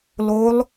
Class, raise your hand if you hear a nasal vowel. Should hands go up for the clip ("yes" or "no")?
no